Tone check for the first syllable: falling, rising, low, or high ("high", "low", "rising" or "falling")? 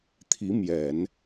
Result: rising